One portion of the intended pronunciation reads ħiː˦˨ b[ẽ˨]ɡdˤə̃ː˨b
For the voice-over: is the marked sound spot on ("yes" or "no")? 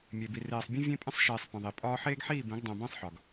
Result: no